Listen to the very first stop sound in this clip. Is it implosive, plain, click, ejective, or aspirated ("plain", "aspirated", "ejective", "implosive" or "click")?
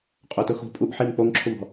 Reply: ejective